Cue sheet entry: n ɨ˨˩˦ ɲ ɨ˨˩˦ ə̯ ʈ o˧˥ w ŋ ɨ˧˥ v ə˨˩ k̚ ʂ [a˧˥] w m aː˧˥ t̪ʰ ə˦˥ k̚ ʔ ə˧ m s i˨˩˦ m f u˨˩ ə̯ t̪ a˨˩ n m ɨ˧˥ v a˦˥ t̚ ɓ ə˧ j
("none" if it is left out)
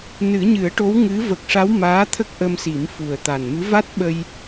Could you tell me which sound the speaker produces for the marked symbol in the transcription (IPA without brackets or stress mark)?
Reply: a˧˥